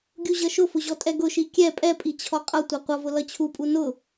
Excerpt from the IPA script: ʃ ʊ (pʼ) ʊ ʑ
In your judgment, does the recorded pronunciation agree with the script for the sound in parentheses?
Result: no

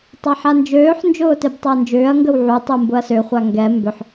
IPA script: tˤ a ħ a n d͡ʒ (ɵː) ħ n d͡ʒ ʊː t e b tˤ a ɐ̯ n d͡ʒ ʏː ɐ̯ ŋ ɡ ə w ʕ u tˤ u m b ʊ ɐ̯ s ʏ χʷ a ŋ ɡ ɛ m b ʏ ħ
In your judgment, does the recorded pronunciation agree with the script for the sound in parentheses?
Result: no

